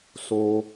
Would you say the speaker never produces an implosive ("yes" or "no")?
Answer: yes